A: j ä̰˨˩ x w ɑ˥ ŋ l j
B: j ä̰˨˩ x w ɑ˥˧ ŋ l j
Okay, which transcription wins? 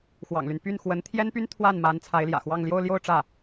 B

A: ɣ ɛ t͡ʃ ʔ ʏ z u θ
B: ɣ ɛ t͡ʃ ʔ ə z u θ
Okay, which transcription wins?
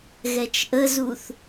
B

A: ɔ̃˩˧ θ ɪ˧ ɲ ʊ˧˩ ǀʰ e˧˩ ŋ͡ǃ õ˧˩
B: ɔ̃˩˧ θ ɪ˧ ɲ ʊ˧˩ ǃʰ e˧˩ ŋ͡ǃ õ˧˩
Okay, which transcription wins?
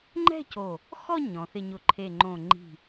B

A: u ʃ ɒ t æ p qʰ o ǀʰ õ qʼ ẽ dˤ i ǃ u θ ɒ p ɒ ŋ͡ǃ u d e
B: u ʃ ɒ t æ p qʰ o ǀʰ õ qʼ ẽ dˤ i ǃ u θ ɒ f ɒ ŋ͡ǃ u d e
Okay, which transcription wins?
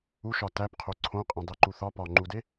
A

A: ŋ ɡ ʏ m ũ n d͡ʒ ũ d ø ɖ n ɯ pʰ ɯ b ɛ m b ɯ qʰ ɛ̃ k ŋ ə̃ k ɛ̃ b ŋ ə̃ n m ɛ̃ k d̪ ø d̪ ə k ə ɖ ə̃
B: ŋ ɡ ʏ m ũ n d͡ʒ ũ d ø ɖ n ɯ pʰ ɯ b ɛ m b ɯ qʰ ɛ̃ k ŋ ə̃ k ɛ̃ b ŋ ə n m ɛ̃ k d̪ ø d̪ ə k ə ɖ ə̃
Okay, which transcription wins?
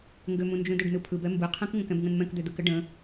A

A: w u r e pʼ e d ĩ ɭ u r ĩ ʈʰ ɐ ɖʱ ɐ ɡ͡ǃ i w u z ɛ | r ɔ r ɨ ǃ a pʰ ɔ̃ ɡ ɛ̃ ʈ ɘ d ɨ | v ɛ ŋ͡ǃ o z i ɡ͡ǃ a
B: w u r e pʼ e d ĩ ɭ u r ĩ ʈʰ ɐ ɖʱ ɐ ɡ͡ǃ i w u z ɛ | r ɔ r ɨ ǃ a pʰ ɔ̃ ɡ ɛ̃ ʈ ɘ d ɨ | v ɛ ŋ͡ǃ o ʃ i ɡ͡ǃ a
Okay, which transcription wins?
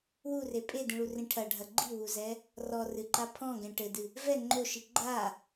B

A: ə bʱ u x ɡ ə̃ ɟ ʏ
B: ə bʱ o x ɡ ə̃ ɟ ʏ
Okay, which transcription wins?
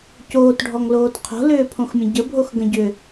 B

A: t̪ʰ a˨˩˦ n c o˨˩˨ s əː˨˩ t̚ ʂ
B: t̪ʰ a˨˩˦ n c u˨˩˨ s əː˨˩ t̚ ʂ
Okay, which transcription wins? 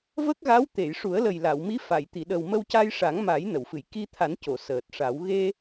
A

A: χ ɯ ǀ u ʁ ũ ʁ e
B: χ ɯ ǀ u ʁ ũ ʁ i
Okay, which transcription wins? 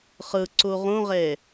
A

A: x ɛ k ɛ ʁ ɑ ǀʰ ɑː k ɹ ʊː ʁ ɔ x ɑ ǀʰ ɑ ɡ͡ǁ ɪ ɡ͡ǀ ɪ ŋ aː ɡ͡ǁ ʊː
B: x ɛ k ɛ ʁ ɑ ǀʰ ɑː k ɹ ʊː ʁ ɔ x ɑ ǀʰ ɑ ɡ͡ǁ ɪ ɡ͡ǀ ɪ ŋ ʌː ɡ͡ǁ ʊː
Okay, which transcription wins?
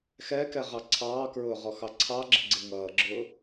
B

